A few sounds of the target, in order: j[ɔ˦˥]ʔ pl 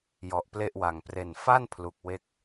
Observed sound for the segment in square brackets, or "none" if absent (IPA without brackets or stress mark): ɔ˦˥